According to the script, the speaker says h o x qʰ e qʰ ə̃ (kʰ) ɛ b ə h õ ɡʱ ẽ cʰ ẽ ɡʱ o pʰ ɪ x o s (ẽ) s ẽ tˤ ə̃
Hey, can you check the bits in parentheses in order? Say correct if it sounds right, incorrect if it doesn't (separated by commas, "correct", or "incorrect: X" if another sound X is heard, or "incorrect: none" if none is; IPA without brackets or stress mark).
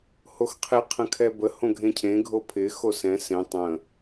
correct, incorrect: ɛ̃